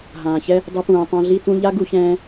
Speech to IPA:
ɦ ãː˨ ç ɛ˦ | dˤ ɛ˧ p ũː˨ tˤ ã˧ ɮ i˦ t ũ˦ ʎ a˦ ɡ u˧ ç ɛ̃ː˧

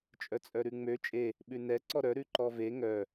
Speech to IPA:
t͡ʃʼ œ t͡sʼ œ ɾ ʉ ŋ͡m ø t͡ʃʼ e | ɓ ʉ n ɛ ǀ ɔ ɾ œ ɾ ʉ ǃ ɔ v e ŋ œ

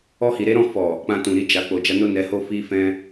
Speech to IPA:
ɔ˧ h i˨ ɾ e˨˦ ɾ ɔ̃˦˨ f ɔ˨ | k͡p ã˧ t ũ˨ ɾ i˨˦ d͡ʒ a˧ k͡p o˨ d͡ʒ a˧ n o˦ n ɛ˧ h o˦ f i˦ f ɛ̃˦

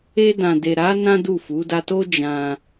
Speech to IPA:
e˧ d ã˨ d e˨ ɾ a˨˦ n ã˦ d u˦˨ f u˨˦ d a˧ t o˦ d͡ʒ ã˧

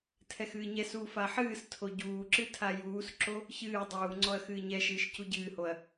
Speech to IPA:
tʰ ɛ x ɨː ɲ ɛ s uː f a ħ ɨː s tʰ o ɟ uː ǁ ɨ tʰ a j uː s ǁ o | ç ɨː dˤ uː ŋ͡ǀ ɔ ɐ̯ x ɨː ɲ ɛ ʃ ɨː ʃ c u ɟ ɨː h o ɐ̯

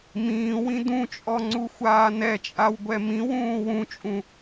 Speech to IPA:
m ĩː w ĩ d ũ t͡ʃʼ ɔ ŋ͡ǀ u xʷ aː n ɛ t͡ʃʼ a w ɡʷ ɛ m ĩ w ũː w ũ t͡ʃʼ ũ

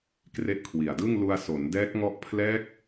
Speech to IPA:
k r e˦˥ ʔ kʰ w i˨˩ a̯ d ɯ˥˩ ŋ l u˧ a̯ s o˩˦ n d ɛː˦˥ k̚ ŋ ɔ˦˥ ʔ pʰ l ɛː˦˥ k̚

